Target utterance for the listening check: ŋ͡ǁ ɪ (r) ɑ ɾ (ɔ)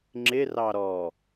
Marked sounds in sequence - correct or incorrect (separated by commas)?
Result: correct, correct